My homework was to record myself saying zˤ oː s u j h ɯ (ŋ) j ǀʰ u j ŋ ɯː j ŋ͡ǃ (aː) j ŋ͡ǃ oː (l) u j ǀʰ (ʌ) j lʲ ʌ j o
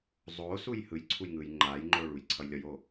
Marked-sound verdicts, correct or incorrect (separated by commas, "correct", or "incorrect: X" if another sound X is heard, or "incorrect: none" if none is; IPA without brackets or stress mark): incorrect: none, correct, incorrect: ɭ, correct